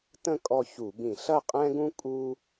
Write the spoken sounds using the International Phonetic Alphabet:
t ə̃˦˨ kʼ ɔ˦˨ ç u˧˩˧ b ĩ˧˩˧ ɬ ɐ˦˨ qʼ ɛ̃˦ ɡ ũ˦ kʼ u˦

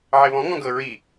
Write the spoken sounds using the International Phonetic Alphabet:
ʕ e β ɔ̃ ŋ ɔ̃ ɡ ɤ ɹ i

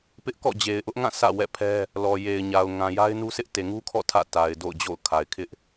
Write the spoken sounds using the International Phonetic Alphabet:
p ɪ˦ ʔ k ɔ̰˦˨ d͡ʑ e˨ ɪ̯ ʔ ʊ˦ ʔ ŋ ã˦˨ s ä̰˦˨ w ɛ̰˦˨ pʰ ɛ˦ | l ɔ˨ j e˨ ɪ̯ ɲ a˨ ʊ̯ ŋ ã˨ j a˦ ɪ̯ n u˦ sʰ ɪ˦ ʔ t e˨ ŋ u˦ kʰ ɔ̰˦˨ tʰ ä̰˦˨ t a˨ ɪ̯ d o̰˦˨ ʊ̯ d͡ʑ o̰˦˨ ʊ̯ kʰ a˨ ɪ̯ kʰ ɪ˦ ʔ

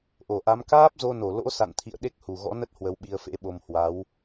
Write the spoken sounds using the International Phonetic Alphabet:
ʔ o˧˩ ʔ a˨˦ m k aː˦˥ p̚ z o˧ n o˧˩ l o̰˧˥ s a̰˧˨ n t̪ʰ ḭ˧˨ ə̯ ɗ e˦˥ k̚ h u˨˩ ɣ ɔ̰˧˥ n ə˦˥ t̚ h w ə˨˦ w ɓ i˧ ə̯ f ḛ˧˥ ɓ o˧ m h w a˨˦ w

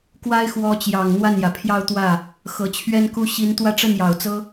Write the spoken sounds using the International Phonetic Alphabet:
k w a˥ ɪ̯ x w ɔ˧˥ t͡ɕ j ɑ˨˩ ŋ n̪ w a˥˩ n j ä˩ pʰ j ɑ˥˧ ʊ̯ t̪ w ä˥˩ | x ɤ˨˩ t͡ɕʰ ɥ ɛ˥ n k u˥ ɕ i˧˥ n t̪ w ä˥˧ ʈ͡ʂ ə˥˩ n j ɑ˨˩ ʊ̯ t͡s ɤ˥

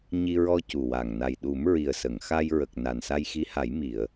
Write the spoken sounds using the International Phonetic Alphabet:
ɲ i˧ ɹ ɔ˧ c u˨˩ w a˨˩ ŋ n a˨˩ j ɗ u˨˩˦ m ɹ i˨˩ ə̯ s ə˨˩˨ ŋ x a˧ j ɹ ə˨˩ k̚ n a˨˩ n s a˧ j x i˧˥ h a˨˩˦ j m i˨˩˨ ə̯

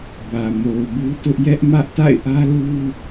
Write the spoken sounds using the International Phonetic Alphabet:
b ä˨ m o˨ ʊ̯ b u˦ t ʊ˦ ʔ j ɛ˦ ʔ m ä˦ ʔ t a̰˦˨ ɪ̯ ʔ ä˦ l u˦

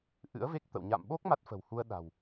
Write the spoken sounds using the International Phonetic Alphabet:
ʔ ɨ̰˧˥ ə̯ v e˦˥ k̚ t̪ ə̰˧˨ w ɲ a̰˧˨ m ɓ o˦˥ k̚ m a˦˥ t̚ f ə̤˨˩ w h u˧ ə̯ ɗ a̤˨˩ w

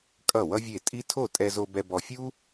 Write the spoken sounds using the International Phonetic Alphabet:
kʼ ʌ˥˩ w ʌ˥ vʲ e˥˩ tʼ i˥ tʰ o˥˩ tʼ ɛ˧ z o˧ b ɛ˧ b ɔ˧ fʲ u˥

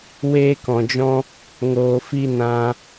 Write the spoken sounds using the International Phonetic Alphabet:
w eː˦ k ɔ̃˨ d͡ʒ ɔ̃˦ | ŋ oː˨ f i˧ n ã˧

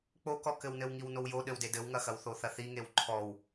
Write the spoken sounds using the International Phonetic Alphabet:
k͡p o k ɔ k ɘ w n ɘ w ŋ i w n o w j o ɗ ɘ w d e d ɘ w ŋ ɐ x ɐ w θ o θ ɐ θ i ŋ e w ǃʰ ɔ w

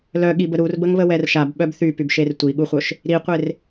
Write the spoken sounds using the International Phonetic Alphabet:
l œ ɠ i b ə ɾ u r b ə ŋ β ə w ɛ r ʃ a b ɓ œ b θ y p y b ʃ e r tʷ i ɠ u χʷ œ ʃ | ɾ i qʷ e r

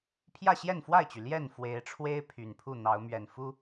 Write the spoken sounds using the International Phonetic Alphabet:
pʰ j ä˥˨ ɕ j ɛ˥˨ n f w a˥˨ ɪ̯ t͡ɕ y˩ l j ɛ˥˨ n f w e˨˦ ɪ̯ ʈ͡ʂʰ w e˦ ɪ̯ pʰ y˨˩ n pʰ u˥˨ n̪ ɑ˨˦ ʊ̯ m ɥ ɛ˨˩ n f u˦

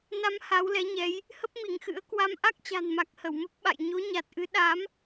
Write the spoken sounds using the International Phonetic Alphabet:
n a˨˦ m h a˨˦ w l ɛ˨˦ ɲ ɛ˨˦ j | h ə˦˥ p̚ m i˧˩ ŋ x ɨ̰˧˥ ə̯ k w a˧ m ʔ a˦˥ k̚ t͡ɕ a̤˨˩ n m a˨˩ k̚ h ə˧˩ w m ə˦˥ p̚ ɓ a̰˧˨ j ɲ o˨˦ ɲ a˨˩ t̚ ʔ ɨ˨˦ ɗ a˨˦ m

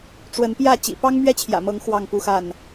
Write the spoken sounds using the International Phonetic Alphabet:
ʈ͡ʂ w ə˨˦ n p j ä˥˨ t͡ɕ ḭ˨˩ p ɑ˦ ŋ m ɥ ɛ˦ t͡ɕʰ j ä̰˨˩ m ɤ˨˦ ŋ x w ɑ˥˨ ŋ p u˦ x a˥˨ n

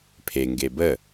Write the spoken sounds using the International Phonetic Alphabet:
pʰ e ŋ ɡ e b ə

